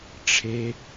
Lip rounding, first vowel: unrounded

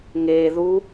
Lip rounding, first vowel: unrounded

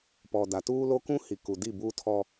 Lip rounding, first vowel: rounded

